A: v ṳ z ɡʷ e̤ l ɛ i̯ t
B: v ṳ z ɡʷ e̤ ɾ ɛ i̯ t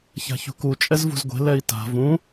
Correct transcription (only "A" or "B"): A